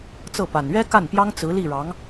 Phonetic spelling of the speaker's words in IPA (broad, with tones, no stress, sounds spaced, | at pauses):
t͡s ɤ˥˩ p a˨˩ n ɥ ɛ˥ k a˥˩ n p j ɑ˥ ŋ t͡s ɹ̩˧˥ l i˥˩ ɻ ɑ˧˥ ŋ